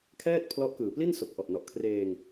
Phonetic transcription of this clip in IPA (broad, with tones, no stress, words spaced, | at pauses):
kʰɛː˥˩t̚pʰlɔ˦˥ʔkɯː˨˩pli˥˩n so˨˩k̚ʔɔ˨˩ʔ nɔ˨˩ʔkʰreː˧ŋ